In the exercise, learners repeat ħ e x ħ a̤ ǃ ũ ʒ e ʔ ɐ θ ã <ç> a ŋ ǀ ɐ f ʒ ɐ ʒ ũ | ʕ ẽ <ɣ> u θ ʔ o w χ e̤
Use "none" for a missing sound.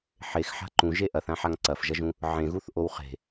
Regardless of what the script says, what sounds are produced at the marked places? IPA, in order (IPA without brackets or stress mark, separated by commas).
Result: ħ, ɣ